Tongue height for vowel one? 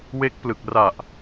mid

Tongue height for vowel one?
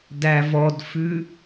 low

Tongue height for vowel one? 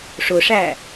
high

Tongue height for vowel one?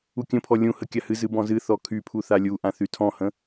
high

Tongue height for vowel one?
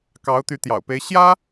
low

